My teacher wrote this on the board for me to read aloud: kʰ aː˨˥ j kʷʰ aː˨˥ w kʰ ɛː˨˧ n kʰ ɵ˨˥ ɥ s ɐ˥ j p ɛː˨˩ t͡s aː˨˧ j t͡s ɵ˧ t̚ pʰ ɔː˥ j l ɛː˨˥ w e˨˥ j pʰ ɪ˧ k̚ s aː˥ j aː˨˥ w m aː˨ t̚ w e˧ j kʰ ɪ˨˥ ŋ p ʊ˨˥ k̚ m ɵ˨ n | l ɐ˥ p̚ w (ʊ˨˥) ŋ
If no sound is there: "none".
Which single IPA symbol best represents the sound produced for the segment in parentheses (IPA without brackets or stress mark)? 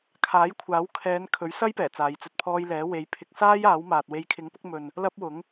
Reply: ʊ˨˥